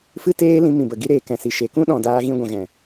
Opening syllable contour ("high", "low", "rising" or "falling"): high